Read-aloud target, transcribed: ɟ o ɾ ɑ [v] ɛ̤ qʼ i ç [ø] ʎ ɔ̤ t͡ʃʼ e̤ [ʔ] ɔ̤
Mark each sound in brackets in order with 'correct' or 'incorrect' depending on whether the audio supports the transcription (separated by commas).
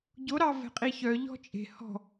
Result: correct, incorrect, incorrect